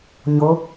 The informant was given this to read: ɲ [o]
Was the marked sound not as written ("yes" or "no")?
no